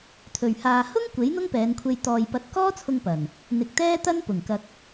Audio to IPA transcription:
t̪ʰ ɵ˨˩ ɥ h aː˨ h ʊ˥ ŋ kʷ e˨˥ j n̪ ʊ˥ ŋ p ɛː˨˧ n kʷʰ e˧ j t̪ ɔː˨ j p ɐ˨˥ t̚ k ɔː˥ t͡sʰ ʊ˧ ŋ p ɐ˨˩ n | n̪ ɪ˨ k̚ t̪ ɛː˥ t̪ ɐ˥ n p ʊ˨˩ ŋ k ɐ˧ k̚

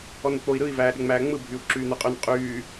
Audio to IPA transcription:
ɔ n ɪ k͡p o i̯ ɾ ɯ i̯ v æː ɗ ɪ ŋ͡m æː ŋ͡m ɯ bʱ y u̯ ǁ yː n̪ ɛ qʼ y n qʼ yː

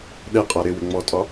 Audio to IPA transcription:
ɗ ɛ qʼ a ɾ ɪ w ɪ ŋ͡m ɔ tʼ ɒ

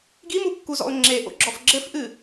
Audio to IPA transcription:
ɡ i m u kː u z ɔ̰ ʊ̯ ŋ͡ǁ e ʔ o̰ ɡ͡ǁ ɔ f ɡ͡ǁ ɘ f ʔ ɨ

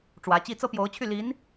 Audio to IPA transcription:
ʈ͡ʂ w ä˧˥ t͡ɕ i˥ t͡s ɤ˥ p j o˧˥ ʊ̯ t͡ɕʰ y˥˩ l i˧˥ n

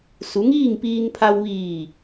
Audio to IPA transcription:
s u˩˧ ŋ iː˥˨ ŋ p iː˧ ŋ pʰ a˧ w ʋ iː˧˩

